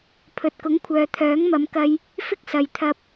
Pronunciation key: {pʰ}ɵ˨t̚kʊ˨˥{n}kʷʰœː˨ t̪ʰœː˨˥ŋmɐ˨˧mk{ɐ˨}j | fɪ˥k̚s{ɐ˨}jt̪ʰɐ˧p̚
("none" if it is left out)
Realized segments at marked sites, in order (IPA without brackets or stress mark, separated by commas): pʰ, ŋ, ɐ˧, ɐ˨